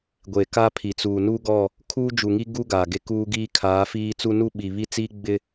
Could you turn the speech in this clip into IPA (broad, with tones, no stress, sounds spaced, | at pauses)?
ɡʷ e˨ k a˦ pʰ i˨ t͡s uː˨ n u˦ ɡ ɔ˦˨ | kʰ uː˦ d͡ʒ u˨ ŋ i˦ ɡ u˦ ɡ aː˨ ɡ e˦ k uː˦ ɡ iː˦ kʰ aː˨˦ f iː˦ t͡s u˦ n u˦ ɓ i˨ β i˦ t͡s iː˦ ɡ͡b ɪ˦